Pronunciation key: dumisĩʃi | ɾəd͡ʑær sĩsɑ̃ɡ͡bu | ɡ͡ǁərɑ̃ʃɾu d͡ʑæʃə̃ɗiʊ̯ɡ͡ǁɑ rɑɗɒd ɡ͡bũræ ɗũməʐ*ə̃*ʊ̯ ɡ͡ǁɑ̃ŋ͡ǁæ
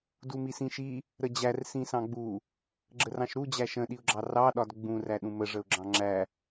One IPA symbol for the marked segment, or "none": ə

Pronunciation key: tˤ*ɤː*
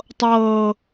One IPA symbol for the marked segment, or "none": ɤː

